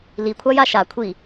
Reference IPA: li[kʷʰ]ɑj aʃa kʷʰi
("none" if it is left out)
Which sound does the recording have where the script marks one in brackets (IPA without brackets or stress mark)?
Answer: kʷʰ